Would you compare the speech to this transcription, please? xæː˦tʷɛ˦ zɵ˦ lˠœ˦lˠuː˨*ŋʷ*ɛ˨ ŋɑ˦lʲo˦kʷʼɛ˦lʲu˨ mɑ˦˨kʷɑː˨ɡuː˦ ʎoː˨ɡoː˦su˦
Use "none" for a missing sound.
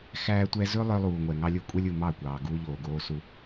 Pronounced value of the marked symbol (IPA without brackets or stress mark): ŋʷ